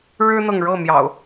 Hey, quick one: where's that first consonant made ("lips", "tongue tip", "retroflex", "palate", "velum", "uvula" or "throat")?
retroflex